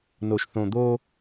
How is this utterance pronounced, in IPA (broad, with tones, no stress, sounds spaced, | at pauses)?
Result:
n o˨ ʃ θ õ˨ d̪ o˦